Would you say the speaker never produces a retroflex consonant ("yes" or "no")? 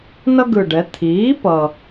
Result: no